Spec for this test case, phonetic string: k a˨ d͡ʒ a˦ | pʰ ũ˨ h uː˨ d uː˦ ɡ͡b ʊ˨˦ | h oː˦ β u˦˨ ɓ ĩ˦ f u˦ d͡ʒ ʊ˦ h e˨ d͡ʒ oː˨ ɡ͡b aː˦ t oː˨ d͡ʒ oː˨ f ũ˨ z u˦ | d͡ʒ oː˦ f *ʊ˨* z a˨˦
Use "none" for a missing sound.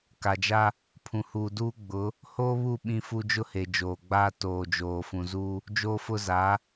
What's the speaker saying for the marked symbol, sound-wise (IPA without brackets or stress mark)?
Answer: ʊ˦